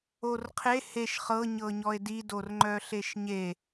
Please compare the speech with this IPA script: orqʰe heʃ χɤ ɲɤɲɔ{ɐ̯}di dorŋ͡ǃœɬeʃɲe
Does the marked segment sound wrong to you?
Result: yes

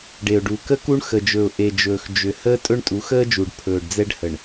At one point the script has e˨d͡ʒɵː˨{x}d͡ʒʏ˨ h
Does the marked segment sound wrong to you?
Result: no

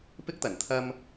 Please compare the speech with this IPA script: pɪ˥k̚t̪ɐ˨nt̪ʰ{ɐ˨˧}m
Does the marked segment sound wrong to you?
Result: yes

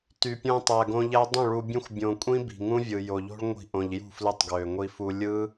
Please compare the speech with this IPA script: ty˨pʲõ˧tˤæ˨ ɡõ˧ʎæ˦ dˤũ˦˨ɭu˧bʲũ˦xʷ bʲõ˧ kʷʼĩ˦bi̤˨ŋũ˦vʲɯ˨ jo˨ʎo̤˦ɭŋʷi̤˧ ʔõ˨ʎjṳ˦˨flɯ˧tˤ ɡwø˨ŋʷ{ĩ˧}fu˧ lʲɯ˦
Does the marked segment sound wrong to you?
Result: yes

